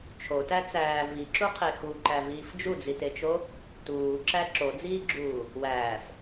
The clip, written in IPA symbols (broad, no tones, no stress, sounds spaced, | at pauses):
t͡ʃʰ o t æ t͡s æː v i ǁ u qʰ e x u ǃ æ v iː f d͡ʒ u d͡z i t e t͡ʃ o | t uː ǁ æ ǁ o d͡z iː ɡ͡ǁ uː | w æː f